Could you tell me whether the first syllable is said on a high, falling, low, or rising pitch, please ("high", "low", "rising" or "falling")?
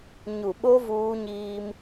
low